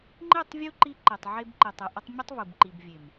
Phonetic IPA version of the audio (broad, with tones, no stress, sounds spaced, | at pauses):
ŋ͡ǃ i˦˨ tˤ vʲ u˦ ǃ i˧ ǃ i˨ tˤ ʕ e˧ b ǃ i˨ tˤ ɘ˨ ʔ ə˧ tˤ mʲ ɘ˦ tˤ v u˨ b ǃ i˨ b vʲ e˨ m